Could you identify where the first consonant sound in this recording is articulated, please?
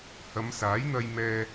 glottal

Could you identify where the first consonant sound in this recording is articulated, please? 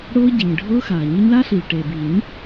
retroflex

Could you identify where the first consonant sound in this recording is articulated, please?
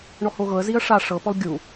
retroflex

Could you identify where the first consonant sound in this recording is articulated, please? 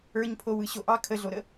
palatal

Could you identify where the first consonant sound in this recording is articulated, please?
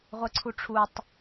uvular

